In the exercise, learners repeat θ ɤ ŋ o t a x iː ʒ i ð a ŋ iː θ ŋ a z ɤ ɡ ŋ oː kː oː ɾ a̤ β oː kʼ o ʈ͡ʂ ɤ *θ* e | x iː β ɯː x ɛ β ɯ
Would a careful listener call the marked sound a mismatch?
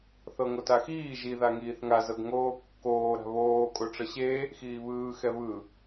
yes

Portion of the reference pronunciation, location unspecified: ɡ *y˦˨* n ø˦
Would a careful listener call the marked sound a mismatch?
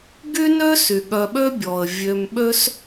yes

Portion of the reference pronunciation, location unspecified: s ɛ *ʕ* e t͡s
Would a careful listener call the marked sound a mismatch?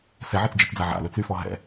no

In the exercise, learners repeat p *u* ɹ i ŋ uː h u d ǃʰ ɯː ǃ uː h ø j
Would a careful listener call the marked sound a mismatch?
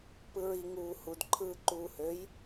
yes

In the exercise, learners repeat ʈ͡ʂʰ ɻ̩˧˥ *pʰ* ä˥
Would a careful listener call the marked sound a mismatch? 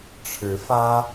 yes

